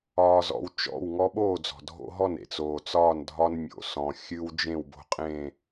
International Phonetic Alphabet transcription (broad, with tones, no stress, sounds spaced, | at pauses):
ɒː˦ z ɔ̰˦ w t͡ʃ ɔ̰˥˨ w ŋ ɔ˦ ɓ oː˥˨ d͡z ɔ̤˩ dʱ o̰˦ ɦ ɔ˥˨ n ḛ˩ t͡s oː˩ t͡s ɒː˥˨ n dʱ ɒ˦ n mʲ o̰˩ s ɔ̃˩ xʲ ɨ˦ w d͡ʒ ẽ˥˨ w b o̤˦ qʼ ẽ˥˨